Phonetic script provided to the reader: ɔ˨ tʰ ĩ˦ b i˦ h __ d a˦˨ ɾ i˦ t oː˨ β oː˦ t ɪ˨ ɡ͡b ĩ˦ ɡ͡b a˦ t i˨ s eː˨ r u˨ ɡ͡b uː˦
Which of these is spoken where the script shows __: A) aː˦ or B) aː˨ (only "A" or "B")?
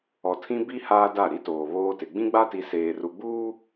A